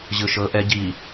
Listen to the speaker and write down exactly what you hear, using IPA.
ʑ ɯ ʃ ɤ ʔ ɛ ɟ i

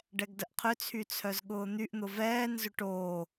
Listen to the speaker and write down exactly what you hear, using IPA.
ɖ ɛ ɡ d ə ʔ qʰ ʏ t͡sʰ y t͡sʰ œ z ɠ ʊː n̪ y ʔ n̪ ʊ v ɛː n z ʏ ʈ oː

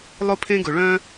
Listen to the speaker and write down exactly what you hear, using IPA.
lˠ ʊ˥ pʰ ẽ˥ ɡ ʊ˩ ɭ œ̃˥

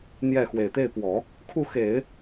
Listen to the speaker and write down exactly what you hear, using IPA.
n̪ j ɛ˥˩ x w e˨˩ ɪ̯ t̪ e˥˩ ɪ̯ p w ɔ˨˩˦ | kʰ u˥˩ x e˨˩˦ ɪ̯

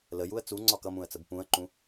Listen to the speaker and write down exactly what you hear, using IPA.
l ə j u ə̯ t͡s u ŋ͡ǀ ɒ k ʌ m ũ ə̯ t͡s ə b p ũ ə̯ ǃ ũ

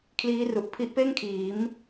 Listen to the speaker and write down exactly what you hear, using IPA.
kʰ l iː˦˥ r u˨˩ ʔ pʰ i˦˥ ʔ p eː˥˩ ŋ kʰ iː˩˦ m

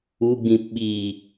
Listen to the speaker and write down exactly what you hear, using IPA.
u ɡ͡b ĩ p ɓ i

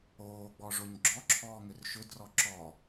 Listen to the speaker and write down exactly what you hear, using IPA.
oː ɡ͡b ɔ ʐ o ɲ ɡ͡ǁ ɔ ǁʰ ɔː ŋ ʏ r ʃ ʏ d r ɔ ǁ ɔ

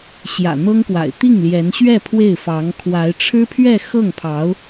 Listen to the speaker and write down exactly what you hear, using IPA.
ɕ j ä̰˨˩ n̪ ɤ˥ ŋ k w a̰˨˩ ɪ̯ t̪ i˥˩ ŋ l j ɛ˧˥ n ɕ ɥ ɛ˥˧ pʰ w e˥˩ ɪ̯ f ɑ˧˥ ŋ kʰ w a˧˥ ɪ̯ ʈ͡ʂʰ ɻ̩˥ pʰ ɥ ɛ˥˧ x ɤ˥˩ ŋ pʰ ɑ˧˥ ʊ̯

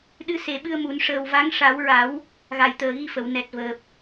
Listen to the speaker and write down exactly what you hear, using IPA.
ɗ ɨ˧˥ s e˨˩˦ ɓ ɨ˧ ə̯ m u˨˩˦ n ʂ əː˨˩ w v a˧˥ ŋ ʂ a˨˩˦ w ɹ a˨˩˦ w | ɣ a˨˩ j t̪ əː˨˩ ɣ i˧ f ə˨˩˨ w n ɛ˨˩ t̚ v əː˨˩ p̚

